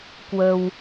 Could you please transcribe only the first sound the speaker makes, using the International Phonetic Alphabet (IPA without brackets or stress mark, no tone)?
k